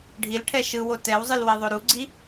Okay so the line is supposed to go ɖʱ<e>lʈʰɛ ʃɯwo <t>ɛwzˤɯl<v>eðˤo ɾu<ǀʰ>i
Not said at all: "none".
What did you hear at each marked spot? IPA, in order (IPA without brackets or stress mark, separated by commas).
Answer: i, t, w, ɡ͡ǀ